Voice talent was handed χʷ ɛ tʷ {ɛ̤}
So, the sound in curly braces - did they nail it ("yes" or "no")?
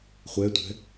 yes